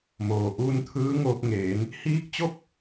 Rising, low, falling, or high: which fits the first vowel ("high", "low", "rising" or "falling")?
low